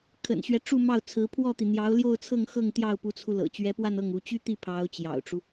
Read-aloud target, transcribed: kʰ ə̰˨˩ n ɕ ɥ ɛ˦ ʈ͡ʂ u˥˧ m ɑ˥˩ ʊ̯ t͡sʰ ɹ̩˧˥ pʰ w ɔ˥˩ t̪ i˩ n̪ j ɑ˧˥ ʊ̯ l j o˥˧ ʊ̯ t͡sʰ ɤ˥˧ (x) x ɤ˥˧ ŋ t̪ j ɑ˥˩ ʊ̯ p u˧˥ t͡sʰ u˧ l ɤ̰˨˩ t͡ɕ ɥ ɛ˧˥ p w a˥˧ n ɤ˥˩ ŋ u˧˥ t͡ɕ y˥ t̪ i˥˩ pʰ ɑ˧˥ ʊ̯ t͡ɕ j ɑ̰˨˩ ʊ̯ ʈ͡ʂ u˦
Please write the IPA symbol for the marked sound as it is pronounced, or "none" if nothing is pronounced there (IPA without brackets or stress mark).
ŋ